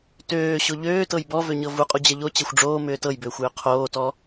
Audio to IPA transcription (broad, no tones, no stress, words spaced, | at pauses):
tøː ɕoʎøːtɤj bɔvøɲɤ vuqʼu d͡ʑɛʎo t͡ɕɛxʷɖ͡ʐoː mʏːtɤjbʏːxʷ jʏqʰoːtɔ